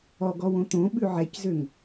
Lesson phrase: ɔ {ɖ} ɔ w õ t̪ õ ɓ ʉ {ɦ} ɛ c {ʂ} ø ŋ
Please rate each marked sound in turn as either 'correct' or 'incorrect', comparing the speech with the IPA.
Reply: incorrect: ɡ, incorrect: ʕ, incorrect: z

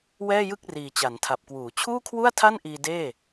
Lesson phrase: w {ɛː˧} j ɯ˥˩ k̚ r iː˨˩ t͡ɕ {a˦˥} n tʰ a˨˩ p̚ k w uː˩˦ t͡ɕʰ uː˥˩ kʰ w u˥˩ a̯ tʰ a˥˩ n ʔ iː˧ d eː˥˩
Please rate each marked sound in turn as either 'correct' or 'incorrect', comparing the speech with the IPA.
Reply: incorrect: ɛː˥˩, incorrect: a˩˦

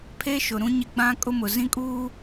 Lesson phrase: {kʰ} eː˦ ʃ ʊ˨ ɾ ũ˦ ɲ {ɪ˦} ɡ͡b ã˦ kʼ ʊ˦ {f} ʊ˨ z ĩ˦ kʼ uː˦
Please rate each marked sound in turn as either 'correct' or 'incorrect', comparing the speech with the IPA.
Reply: incorrect: pʰ, correct, incorrect: m

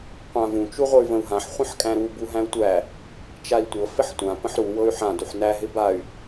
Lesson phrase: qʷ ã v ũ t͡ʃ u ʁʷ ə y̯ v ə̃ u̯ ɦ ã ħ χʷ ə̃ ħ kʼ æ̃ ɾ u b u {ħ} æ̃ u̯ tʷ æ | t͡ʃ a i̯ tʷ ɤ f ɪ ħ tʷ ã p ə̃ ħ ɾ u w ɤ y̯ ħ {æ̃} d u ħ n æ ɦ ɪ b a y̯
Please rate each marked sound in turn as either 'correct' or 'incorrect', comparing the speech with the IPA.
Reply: incorrect: ɦ, incorrect: ã

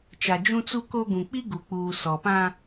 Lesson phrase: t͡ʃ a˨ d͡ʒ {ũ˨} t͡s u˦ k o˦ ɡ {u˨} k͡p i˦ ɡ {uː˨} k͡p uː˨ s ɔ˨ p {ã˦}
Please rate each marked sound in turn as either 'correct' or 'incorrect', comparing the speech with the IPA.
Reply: incorrect: ũ˦, incorrect: ũ˨, incorrect: u˨, correct

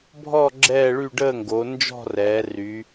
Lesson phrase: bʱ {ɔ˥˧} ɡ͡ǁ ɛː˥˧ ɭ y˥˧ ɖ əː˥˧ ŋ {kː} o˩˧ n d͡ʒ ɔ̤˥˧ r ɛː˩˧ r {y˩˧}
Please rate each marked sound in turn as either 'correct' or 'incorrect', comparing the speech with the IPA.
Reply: correct, incorrect: ɡ, correct

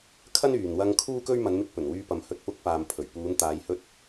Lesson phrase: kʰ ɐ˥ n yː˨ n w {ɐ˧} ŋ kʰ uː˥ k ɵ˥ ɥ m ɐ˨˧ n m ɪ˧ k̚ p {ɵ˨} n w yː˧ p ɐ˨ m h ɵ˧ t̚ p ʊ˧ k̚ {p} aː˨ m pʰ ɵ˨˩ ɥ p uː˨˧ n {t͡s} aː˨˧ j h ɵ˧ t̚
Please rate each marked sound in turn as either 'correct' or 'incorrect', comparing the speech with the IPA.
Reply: correct, incorrect: ɵ˨˩, correct, incorrect: t̪

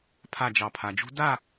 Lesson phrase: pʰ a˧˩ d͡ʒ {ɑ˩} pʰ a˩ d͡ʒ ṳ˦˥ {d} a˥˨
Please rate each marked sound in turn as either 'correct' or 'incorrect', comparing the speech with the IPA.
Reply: correct, correct

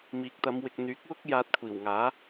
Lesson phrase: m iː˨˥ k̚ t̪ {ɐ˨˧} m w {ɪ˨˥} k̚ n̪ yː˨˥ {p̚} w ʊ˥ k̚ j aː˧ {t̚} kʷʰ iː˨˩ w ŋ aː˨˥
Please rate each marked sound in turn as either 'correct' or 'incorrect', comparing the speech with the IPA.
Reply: correct, incorrect: ɪ˨, incorrect: k̚, correct

